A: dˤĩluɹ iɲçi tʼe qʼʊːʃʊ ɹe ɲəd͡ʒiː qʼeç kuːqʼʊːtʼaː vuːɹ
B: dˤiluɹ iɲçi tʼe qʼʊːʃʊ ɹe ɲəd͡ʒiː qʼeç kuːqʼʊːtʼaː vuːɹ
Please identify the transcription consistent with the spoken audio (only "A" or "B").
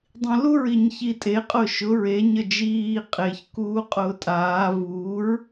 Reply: A